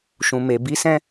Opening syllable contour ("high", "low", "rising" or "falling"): low